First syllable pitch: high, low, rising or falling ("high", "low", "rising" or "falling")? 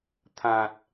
low